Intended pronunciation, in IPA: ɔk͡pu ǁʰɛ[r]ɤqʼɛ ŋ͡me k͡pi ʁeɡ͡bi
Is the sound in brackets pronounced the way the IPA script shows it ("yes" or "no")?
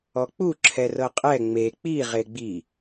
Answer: yes